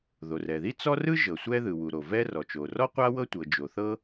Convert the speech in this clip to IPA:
ð o˩ r ɛ˩ ð i˥ t͡s ɔ˥ r ɯ˥ ʒ ɤ˩ sʷ ɛ˥ ð ɯ˩ w u˩ ɾ o˩ v ɛ˥ r ɔ˩ t͡ʃ o˩ r ɔ˥ qʷ a˥ w ɤ˥ tʷ ɤ˩ d͡ʒ o˩ θ ɤ˥

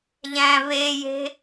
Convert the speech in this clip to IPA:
ʎ æ̃ β e j e̤

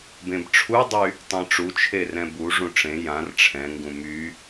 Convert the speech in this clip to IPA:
b ẽ b ʈ͡ʂʰ u dˤ y | tˤ ẽ ʈ͡ʂ u t͡ʃʰ e r ɛ̃ b u ʐ ũ ʈ͡ʂ ẽ j ã r ʈ͡ʂʰ ɛ̃ ŋ ɡ ũ m y

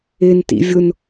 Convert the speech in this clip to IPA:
ɪ n t ḭ vʲ ʊ n

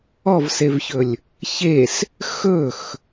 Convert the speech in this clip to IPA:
ɔ v s e v ç ɵ lʲ | ç e s | x ɵ x

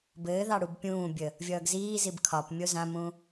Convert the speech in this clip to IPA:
b ɘː ð ɑ ɽ u b pʲ ũː bʲ ə | vʲ ʌː ɡ z iː z i b kʰ ɒ p mʲ o z ã m ũ

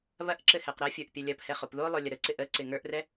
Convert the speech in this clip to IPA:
β ɐ ʔ ǁ ɘ h ɛ q ɾ ɐ fʲ ə˞ ʔ pʲ ɐ lʲ ɐ p h ɛ χ o p ð o lˠ o lʲ ɐ ɾ ə ǀ ɪ ʔ ə ǀ ɪ ŋ ə˞ ʔ r ɛ

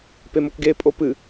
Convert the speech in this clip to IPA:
p e m o k ɡ e pʼ o p ɨ

